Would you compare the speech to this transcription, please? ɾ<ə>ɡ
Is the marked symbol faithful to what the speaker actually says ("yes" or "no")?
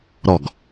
no